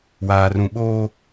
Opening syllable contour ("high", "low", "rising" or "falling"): low